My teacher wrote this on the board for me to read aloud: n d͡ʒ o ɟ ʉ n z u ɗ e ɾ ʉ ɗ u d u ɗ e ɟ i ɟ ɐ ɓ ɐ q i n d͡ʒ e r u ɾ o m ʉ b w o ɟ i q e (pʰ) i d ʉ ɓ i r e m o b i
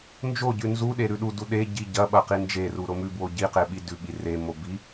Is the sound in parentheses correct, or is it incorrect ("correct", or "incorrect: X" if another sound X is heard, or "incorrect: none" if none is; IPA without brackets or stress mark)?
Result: incorrect: ɓ